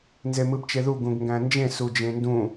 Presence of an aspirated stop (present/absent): absent